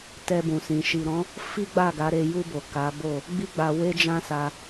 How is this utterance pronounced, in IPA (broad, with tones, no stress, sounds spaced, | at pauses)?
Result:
t ɛ˧ b ũ˨ s ĩ˨ ʃ i˨ ɾ ɔ̃˨˦ | f i˦ ɡ͡b a˦˨ ɡ a˨˦ ɾ e˧ j u˧ b o˨ k a˨˦ b o˦˨ | ɡ͡b i˦ ɡ͡b a˧ w e˦ d͡ʒ ã˦ s a˧